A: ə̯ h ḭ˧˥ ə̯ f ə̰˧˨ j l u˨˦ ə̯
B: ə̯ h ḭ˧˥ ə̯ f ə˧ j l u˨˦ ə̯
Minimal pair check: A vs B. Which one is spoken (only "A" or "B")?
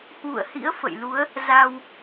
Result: A